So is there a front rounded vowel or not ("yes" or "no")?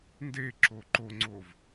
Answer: no